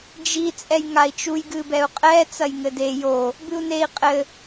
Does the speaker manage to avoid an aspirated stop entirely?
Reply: yes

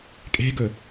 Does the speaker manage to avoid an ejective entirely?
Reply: no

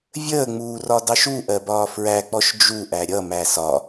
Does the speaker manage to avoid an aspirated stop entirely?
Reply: yes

